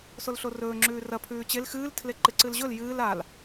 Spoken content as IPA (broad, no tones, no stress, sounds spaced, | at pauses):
s o l ɬ o r ɵː ŋ͡ǁ ʉː r ɐ pʰ ʉː t͡ɕ e l x ɨː l tʰ l e ǃ ɨ ǀ ɨ l ʑ ɵ l j ɨː l a l